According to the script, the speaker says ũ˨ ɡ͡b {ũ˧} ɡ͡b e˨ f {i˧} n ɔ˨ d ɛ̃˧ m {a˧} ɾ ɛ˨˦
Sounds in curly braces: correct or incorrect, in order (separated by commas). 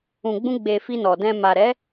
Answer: correct, correct, incorrect